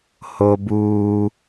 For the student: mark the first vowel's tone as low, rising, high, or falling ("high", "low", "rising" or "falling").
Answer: high